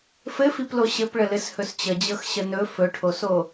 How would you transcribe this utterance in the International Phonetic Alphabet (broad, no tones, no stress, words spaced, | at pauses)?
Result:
fɘfiplo ɕɘpɭəlɘshɵs t͡ɕəd͡ʑɤx ɕənɵ fɵʈʰoso